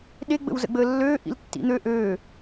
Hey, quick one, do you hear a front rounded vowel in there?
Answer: yes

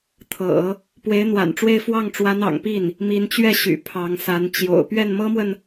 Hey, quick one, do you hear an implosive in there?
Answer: no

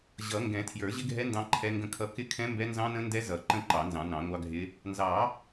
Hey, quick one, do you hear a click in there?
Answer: yes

